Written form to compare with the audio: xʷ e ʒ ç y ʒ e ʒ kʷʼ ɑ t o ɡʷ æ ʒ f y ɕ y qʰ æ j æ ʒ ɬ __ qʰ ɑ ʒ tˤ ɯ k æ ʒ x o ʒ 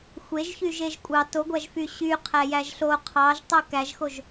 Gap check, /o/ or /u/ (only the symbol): o